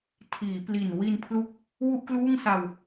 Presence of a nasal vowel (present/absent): absent